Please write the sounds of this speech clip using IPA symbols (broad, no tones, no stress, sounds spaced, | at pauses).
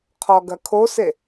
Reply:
qʰ ɔ ɡ ɐ kʰ o s e